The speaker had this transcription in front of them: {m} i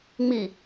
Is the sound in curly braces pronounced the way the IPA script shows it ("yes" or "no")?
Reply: no